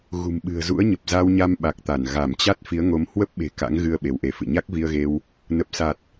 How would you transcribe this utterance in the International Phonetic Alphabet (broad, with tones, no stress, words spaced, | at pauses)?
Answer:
ɣṳ˨˩mɓɨ̤˨˩ə̯zṵ˧˥ə̯ɲə˨˩p̚ za˧wɲa˧mɓa˨˩k̚t̪a˧˩n ɣa˧˩mt͡ɕa˦˥t̚ fi˨˦ə̯ŋo˨˦m hwə˦˥p̚ɓe̤˨˩ ka̰˧˥ŋɣɨ˧ə̯ ɓe˨˦wʔe˨˦fɨ̰˧˨ ɲa˦˥k̚vi˧ə̯ɣe˧w | nə˨˩p̚sa˨˩t̚